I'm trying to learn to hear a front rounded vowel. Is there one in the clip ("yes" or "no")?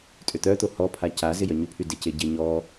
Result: yes